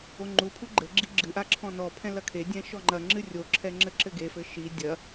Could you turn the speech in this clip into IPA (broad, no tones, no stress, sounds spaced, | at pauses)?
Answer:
o ŋ͡ǃ u pʰ u ɡ͡ǃ ɘ ɡ͡ǁ i ɡ͡ǁ ɨ ʔ a ǁʰ ɔ̃ n ɔ pʰ ɛ̃ l ɐ kʰ e dʲ ɛ̃ ʃ ɔ ŋ͡ǃ ɐ ŋ͡ǁ ɨ rʲ o ǁʰ ɛ ŋ͡ǁ ɘ ǁ ɘ ɡ e f ɘ ʃ i dʲ ɐ